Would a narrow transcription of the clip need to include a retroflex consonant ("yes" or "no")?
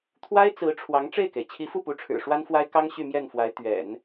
yes